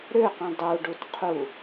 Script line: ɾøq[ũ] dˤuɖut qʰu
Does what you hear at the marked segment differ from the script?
no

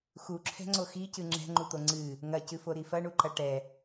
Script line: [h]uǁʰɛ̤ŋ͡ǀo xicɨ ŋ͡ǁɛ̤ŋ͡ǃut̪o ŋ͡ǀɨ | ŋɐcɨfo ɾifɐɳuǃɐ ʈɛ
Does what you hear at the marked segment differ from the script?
yes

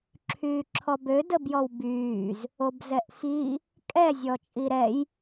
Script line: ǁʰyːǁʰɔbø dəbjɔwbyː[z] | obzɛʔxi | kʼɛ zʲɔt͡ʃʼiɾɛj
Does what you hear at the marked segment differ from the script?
no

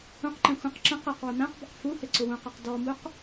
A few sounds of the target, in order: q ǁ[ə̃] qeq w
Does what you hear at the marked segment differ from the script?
no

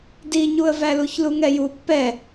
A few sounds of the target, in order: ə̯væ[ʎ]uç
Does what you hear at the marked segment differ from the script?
yes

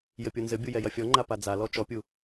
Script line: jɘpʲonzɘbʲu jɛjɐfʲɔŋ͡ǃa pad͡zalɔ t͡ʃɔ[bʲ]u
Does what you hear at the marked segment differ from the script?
yes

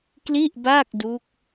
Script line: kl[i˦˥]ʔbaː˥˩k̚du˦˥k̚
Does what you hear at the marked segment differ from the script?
yes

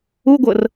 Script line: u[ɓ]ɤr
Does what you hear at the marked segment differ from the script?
yes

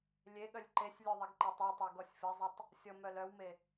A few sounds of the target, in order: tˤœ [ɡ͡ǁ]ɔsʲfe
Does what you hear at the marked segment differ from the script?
yes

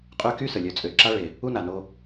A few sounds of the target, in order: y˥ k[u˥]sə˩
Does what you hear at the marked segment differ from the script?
yes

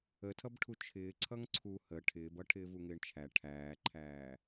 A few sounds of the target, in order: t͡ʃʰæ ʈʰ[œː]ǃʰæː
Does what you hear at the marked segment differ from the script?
yes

